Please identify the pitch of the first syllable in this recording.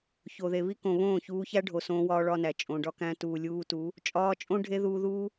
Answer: low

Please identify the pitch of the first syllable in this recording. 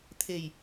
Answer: low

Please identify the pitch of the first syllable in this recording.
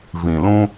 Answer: low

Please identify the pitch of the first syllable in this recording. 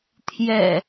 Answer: low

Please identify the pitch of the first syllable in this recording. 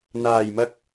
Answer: low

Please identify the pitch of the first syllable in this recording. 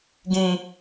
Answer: high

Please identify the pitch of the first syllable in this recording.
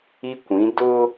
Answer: high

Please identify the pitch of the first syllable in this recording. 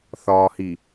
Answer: low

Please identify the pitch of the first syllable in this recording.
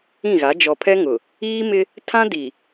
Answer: falling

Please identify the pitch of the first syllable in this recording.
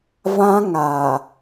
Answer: high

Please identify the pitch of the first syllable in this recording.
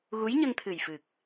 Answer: rising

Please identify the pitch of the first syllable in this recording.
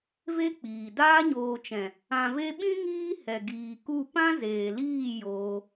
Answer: high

